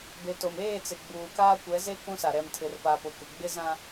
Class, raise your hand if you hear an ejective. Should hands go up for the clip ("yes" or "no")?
no